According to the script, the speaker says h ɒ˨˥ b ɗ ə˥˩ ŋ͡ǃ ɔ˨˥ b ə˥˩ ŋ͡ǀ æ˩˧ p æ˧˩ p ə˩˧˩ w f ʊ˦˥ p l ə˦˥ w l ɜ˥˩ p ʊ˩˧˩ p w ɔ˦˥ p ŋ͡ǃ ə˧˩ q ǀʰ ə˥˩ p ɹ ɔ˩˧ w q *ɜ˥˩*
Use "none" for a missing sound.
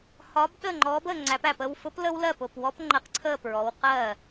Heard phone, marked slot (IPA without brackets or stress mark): ɜ˥˩